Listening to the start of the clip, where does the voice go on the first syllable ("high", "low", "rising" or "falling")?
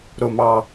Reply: low